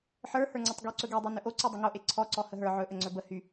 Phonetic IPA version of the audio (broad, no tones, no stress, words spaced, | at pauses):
ħə˞hə˞ŋ͡ǀɵtˤ ɡyǀɵ ɡedˤo nɵʔo ǀydˤəŋoʔe ǀʰɔǀɔ həɦə˞ ʕɵʔəŋ͡ǀɵ bə hy